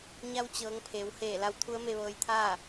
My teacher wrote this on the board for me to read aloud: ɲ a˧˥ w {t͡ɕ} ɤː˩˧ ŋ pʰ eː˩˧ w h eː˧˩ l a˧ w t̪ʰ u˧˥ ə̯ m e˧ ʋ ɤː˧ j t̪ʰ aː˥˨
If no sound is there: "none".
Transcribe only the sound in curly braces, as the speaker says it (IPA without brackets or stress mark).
t͡ɕ